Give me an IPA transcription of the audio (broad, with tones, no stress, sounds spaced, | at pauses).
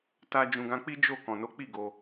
t a˧ d͡ʒ ũ˨ ɡ ã˧ k͡p i˦ d͡ʒ o˦˨ k ɔ̃˨ n o˨˦ k͡p i˦˨ ɡ o˧